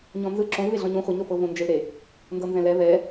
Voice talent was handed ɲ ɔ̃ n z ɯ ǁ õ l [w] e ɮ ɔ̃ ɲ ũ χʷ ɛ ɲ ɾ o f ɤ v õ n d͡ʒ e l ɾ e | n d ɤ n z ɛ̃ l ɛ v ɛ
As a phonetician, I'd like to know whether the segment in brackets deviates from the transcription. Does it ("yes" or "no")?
yes